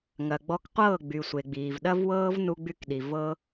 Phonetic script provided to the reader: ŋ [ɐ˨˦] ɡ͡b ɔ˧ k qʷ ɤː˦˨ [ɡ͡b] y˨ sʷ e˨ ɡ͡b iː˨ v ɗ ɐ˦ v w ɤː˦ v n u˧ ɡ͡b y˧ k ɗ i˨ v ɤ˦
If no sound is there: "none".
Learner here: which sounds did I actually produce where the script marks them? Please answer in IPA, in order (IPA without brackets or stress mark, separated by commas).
ɐ˨, ɡ͡b